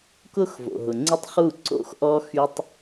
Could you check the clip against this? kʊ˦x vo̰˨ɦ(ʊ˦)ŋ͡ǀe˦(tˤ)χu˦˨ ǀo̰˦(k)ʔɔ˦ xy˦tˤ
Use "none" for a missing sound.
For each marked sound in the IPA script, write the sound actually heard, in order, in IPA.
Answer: ʊ˨, tˤ, x

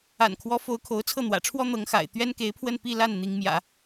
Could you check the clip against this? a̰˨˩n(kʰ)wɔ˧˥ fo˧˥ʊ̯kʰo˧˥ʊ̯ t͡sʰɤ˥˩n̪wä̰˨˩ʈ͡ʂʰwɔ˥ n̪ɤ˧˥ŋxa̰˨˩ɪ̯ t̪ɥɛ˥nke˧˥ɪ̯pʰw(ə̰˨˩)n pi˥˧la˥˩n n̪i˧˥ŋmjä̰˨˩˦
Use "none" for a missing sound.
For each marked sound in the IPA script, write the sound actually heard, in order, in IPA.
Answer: kʰ, ə˥˧

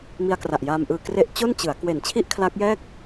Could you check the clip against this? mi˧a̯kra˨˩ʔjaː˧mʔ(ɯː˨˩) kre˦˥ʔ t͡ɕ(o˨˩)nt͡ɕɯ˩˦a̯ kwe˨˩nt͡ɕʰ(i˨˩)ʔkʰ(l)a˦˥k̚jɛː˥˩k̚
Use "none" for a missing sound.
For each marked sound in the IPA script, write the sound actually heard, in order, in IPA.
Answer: ɯː˧, o˥˩, i˥˩, l

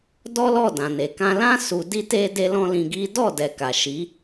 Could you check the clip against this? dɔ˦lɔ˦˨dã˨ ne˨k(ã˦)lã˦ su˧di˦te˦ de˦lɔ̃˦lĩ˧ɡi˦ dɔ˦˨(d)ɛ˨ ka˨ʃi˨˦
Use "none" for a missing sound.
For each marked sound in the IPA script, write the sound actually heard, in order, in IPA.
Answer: ã˧, d

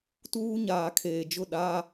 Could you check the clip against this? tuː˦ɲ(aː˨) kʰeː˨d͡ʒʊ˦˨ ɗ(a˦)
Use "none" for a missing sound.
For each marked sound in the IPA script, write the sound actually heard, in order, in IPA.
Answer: aː˨, aː˦

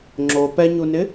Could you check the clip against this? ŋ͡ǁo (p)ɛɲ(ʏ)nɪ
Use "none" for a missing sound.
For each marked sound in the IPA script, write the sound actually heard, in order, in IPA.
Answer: p, u

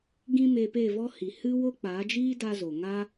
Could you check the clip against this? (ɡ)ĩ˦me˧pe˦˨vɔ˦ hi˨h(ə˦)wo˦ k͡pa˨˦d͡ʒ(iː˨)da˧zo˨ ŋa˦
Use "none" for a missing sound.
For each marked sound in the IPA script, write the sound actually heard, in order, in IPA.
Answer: ɡ, ɨ˦, iː˦

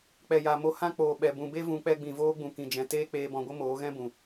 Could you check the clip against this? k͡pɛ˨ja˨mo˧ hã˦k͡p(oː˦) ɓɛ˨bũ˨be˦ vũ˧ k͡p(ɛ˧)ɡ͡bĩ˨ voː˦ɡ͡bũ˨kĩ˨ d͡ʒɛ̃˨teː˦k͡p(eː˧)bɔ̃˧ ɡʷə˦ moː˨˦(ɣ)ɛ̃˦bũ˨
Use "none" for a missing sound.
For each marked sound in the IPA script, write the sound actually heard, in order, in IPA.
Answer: oː˨, ɛ˧, eː˧, ɣ

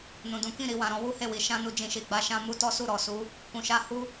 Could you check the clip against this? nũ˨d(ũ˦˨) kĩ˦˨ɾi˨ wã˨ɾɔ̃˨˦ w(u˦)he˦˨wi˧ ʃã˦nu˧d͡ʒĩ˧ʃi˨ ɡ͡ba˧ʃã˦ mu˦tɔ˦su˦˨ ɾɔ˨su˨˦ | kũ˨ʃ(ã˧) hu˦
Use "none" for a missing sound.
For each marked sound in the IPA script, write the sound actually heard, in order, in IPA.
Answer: ũ˨˦, u˦, a˧

